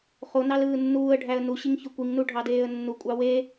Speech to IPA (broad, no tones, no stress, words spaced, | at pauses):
χo nɑlɯːnːuːə̯ɖʱæə̯ nuɕiŋ çøkʷiŋnu ɖʱɑdeːə̯nːukʷʼɑ we